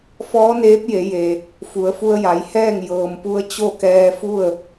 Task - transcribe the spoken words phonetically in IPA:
f ɔː˧˥ n eː˧˥ p̚ j e˩˧ j e˩ | f u˩˧ ə̯ f u˧ ə̯ j a˩˧ j h ɛː˥˨ ŋ j ɤː˩ m p u˧ ə̯ t͡ɕ o˥˨ k ɛː˧ f u˥˨ ə̯

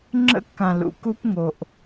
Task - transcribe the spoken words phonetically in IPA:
ŋ͡ǁ ə̰˦ kː ã˨ l ṵ˨ k u˦ p ŋ o˨ ʔ

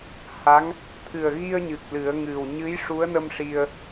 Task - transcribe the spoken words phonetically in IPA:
h a˧˥ ŋ | t̪ʰ ɨ˨˩ ə̯ ɣ i˧ ə̯ ɲ ɨ˨˩ k̚ l ɨ˨˩˦ ə̯ ŋ ɨ˨˩ w ɲ ɨ˧˥ j ʂ u˧˥ ə̯ n ə˧ m ʂ i˧ ə̯

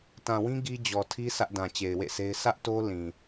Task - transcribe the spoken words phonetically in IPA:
t ã˨ w ĩ˦ ɡ i˦ d͡ʑ ɔ˨ tʰ i˦ sʰ ä˦ ʔ d ã˨ t͡ɕ e˨ ɪ̯ w ḛ˦˨ sʰ e˦ ɪ̯ sʰ ä˦ ʔ t o˦ l ĩ˨

